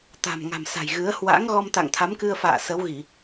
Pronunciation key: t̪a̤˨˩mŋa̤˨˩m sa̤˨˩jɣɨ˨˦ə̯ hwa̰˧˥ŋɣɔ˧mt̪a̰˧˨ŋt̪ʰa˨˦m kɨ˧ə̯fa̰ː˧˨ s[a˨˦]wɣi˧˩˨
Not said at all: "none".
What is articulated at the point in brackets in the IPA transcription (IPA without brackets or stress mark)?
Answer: ə˨˦